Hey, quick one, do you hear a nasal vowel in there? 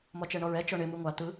no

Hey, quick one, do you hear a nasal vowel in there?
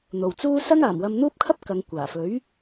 no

